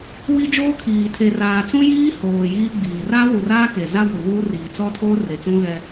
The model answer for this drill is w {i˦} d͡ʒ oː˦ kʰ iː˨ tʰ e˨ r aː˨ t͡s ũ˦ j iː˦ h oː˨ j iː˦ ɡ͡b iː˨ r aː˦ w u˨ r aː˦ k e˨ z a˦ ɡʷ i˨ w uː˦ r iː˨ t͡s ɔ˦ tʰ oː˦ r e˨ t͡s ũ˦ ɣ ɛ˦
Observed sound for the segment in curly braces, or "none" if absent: i˦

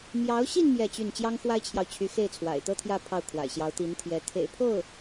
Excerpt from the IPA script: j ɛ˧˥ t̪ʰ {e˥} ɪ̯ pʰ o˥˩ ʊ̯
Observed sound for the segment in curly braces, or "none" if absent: ḛ˨˩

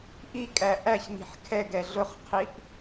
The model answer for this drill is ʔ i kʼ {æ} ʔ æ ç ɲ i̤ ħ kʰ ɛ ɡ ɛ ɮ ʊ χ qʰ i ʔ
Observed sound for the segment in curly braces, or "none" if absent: æ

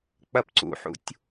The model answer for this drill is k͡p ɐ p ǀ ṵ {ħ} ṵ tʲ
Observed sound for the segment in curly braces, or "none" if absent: ħ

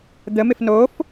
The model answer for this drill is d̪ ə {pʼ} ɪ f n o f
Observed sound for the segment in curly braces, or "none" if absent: m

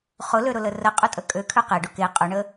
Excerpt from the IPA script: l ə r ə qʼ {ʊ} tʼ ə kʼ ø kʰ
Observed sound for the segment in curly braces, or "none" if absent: ʊ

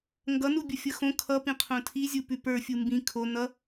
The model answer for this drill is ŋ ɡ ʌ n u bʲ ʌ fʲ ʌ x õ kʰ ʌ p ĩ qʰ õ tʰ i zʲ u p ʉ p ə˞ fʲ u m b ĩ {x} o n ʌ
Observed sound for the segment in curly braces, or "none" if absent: kʰ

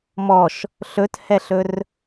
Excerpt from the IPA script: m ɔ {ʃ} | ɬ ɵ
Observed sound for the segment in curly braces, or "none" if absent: ʃ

